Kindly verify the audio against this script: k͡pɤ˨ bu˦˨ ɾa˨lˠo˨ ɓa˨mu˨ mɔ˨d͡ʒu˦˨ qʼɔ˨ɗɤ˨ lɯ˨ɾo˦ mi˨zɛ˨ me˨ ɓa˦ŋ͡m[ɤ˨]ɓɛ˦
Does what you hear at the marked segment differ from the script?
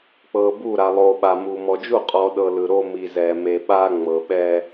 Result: no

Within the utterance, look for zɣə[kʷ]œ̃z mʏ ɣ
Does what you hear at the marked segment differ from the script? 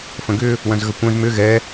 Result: no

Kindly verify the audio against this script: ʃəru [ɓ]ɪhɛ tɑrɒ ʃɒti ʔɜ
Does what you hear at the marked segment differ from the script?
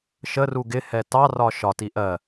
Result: yes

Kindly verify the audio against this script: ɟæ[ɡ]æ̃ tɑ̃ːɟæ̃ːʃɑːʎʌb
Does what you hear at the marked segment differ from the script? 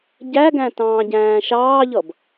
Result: no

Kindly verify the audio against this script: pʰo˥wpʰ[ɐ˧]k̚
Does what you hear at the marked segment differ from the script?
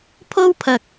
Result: no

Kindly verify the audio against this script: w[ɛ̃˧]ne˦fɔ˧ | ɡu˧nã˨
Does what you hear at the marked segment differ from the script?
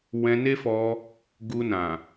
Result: no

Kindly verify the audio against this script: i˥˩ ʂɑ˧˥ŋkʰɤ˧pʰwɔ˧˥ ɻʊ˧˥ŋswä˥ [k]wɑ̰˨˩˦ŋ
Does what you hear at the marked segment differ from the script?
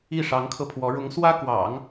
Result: no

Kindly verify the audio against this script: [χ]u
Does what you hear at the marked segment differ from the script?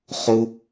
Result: no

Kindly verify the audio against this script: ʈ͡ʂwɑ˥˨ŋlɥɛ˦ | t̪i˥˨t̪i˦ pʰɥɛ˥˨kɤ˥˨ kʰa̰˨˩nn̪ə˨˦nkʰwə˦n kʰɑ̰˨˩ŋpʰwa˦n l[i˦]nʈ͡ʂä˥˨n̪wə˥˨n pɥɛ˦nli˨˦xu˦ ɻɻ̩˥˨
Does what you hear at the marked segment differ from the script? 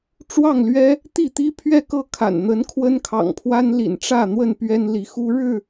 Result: yes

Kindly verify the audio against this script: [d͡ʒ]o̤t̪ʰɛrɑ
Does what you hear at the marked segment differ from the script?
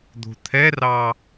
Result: yes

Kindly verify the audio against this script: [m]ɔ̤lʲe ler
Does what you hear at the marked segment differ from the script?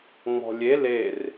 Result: yes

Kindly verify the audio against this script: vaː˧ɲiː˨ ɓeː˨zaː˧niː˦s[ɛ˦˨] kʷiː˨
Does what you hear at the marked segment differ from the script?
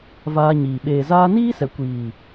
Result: yes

